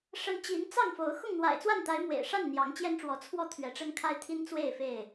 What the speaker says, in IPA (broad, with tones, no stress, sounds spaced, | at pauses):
ʂ ə˨˦ n t͡ɕ i˨˦ n t͡s ɑ˥˨ ŋ f o˨˦ ʊ̯ x ʊ˥˨ ŋ n̪ w a̰˨˩ ɪ̯ t͡s w a˥˨ n t̪ a˨˦ ɪ̯ m w ḛ˨˩ ɪ̯ ʂ a˥˨ n n̪ j ɑ˨˦ ŋ t͡ɕ j ɛ˦ n ʈ͡ʂ w ɔ˨˦ t͡sʰ w ɔ˥˨ t̪ʰ ɥ ɛ˨˦ ʈ͡ʂ ə˦ n kʰ a˦ ɪ̯ t̪ʰ i˦ n t͡s w e˥˨ ɪ̯ f e˥˨ ɪ̯